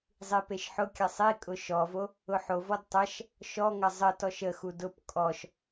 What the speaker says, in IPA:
zˤ i p e ʃ ħ ʊ kʲ ɐ sˤ i kʼ ʊ ʃ ɔ v o | ʊ ħ o v ɔ d tˤ ɐ ʃ | ʃ ɔ ŋ ɐ zˤ ə t ɔ ʃ ə x u d ʊ p kʼ ɔ ʃ

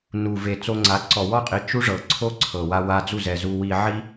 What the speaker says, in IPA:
n u˨ v e˨ t͡s o˧ ŋ͡ǀ a˨˦ ǀ ɔ˨ w ɔ˦ qʼ i˨˦ t͡ʃ u˦ ʐ ɤ˨ ǀʰ o˦ ǀʰ ɤ˨ w a˧ w a˧ d͡z u˦˨ z ɛ˨ z u˧ w i˧ ʕ i˦

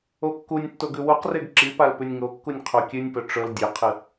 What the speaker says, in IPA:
o kː u nʲ tː o ɡ ʉ w u q r e ɡ ǁ i p a l p ʉ nʲ ŋ o kː u nʲ qʰ o kʲ ʉ nʲ p ɵ ʈ͡ʂ ɵ l dʲ ɵ qʰ ɨ

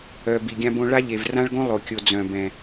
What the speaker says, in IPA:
œ˨ b i˨ ɡʲ ã˦ b õ˦ ɭ a˦ ʎ e˨ v r ã˦ ɭ ɡ õ˦ lˠ o˨ kʲ o˨ d͡z œ̃˨ b ɛ̃˨

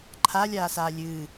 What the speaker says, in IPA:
ǃʰ a lʲ aː s aː lʲ ɨː

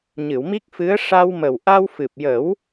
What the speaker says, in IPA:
ɲ ɨ˨˩˨ w m i˦˥ k̚ f ɨ˧˥ ə̯ ʂ a˧ w m ə˨˩ w ʔ a˧ w f ɨ˨˩ p̚ j ə˨˩˦ w

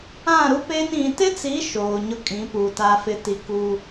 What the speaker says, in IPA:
ã˦˨ ɾ u˦ p e˦ n ĩ˨ t ɪ˦ t͡s i˨˦ ʃ oː˨ ɲ ʊ˦ kʼ ĩ˨˦ p u˨ t a˨ f ɪ˨ t i˨ k u˦

